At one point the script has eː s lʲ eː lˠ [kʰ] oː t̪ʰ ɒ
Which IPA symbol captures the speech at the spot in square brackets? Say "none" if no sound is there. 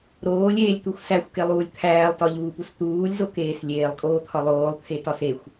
kʼ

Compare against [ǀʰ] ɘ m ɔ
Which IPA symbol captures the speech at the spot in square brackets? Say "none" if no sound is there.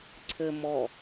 ǀʰ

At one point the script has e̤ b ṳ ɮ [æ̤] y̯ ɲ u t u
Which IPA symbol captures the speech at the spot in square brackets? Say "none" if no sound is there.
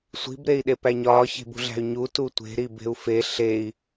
æ̤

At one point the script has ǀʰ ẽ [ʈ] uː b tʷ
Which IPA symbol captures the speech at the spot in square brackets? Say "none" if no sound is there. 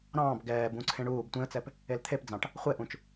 ɳ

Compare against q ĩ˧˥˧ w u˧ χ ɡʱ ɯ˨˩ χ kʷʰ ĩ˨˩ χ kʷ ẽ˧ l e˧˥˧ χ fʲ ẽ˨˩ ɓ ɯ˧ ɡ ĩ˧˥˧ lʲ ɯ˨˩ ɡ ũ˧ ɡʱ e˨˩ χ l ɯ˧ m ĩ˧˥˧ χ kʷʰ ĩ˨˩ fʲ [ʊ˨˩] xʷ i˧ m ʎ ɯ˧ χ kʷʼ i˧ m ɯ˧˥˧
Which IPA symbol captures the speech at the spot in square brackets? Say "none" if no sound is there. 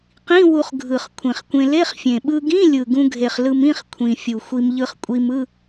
u˨˩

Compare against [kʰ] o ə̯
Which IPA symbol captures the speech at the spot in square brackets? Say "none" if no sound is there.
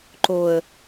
ǃ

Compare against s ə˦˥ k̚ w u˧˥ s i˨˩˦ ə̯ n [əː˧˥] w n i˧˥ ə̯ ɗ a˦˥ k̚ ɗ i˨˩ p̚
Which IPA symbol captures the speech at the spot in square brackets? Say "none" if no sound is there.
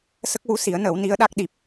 əː˨˩˦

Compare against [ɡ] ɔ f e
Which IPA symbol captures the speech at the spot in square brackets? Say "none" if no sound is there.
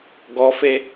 ɡ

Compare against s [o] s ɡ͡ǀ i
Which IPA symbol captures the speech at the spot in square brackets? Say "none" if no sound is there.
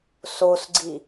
o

